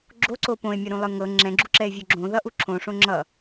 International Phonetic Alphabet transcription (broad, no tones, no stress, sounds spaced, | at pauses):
ɡ͡ǁ o ǀ o p õ e̯ mʲ ʌ ɾ ũ lˠ ɯ ŋ ɤ ŋ͡ǁ ɛ̃ ɡ͡ǁ u ǁ ɛ e̯ vʲ o ɡ͡ǁ õ ð ʌ ʔ u ǁʰ õ ʂ õ ŋ͡ǁ ʌ